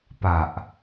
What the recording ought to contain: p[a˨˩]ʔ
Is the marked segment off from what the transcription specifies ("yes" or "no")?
no